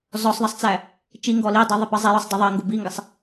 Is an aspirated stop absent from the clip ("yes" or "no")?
yes